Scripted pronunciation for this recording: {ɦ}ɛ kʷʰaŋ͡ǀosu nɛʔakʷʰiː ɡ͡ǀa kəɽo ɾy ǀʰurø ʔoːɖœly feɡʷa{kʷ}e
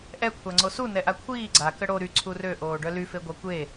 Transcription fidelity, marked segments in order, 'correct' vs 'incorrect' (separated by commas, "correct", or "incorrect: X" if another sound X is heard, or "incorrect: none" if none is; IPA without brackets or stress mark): incorrect: ʔ, correct